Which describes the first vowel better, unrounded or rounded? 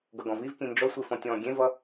unrounded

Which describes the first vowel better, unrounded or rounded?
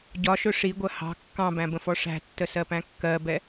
rounded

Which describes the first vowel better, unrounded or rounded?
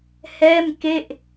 unrounded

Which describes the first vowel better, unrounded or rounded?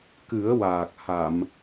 unrounded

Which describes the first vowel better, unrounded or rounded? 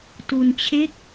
rounded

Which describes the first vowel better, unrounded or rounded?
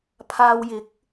unrounded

